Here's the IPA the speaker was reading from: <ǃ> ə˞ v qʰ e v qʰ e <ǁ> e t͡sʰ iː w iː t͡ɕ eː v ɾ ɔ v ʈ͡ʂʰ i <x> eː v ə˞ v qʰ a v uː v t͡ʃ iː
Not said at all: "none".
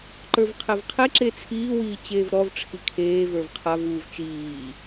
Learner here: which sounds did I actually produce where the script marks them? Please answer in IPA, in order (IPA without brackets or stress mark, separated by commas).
ǃ, ǁ, kʰ